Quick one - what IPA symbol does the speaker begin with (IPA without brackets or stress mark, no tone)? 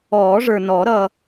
ɔː